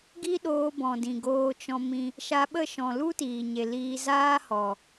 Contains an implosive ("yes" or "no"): yes